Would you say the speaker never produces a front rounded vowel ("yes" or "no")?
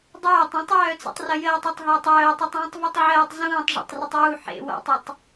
no